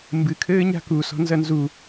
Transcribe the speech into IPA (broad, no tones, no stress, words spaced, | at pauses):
mbɨkʰɘː ɲa̤kusɔ̤ nzɐnzu